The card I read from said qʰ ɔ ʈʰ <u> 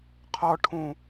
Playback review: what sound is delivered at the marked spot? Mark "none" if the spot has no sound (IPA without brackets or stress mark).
ũ